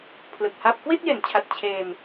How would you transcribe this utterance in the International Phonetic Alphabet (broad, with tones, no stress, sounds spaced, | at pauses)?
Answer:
pʰ l ɯ˨˩ k̚ h a˥˩ p̚ k w i˥˩ t̚ j e˩˦ n t͡ɕʰ a˨˩ t̚ t͡ɕʰ eː˧ m